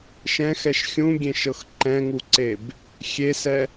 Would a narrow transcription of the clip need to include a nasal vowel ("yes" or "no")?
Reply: yes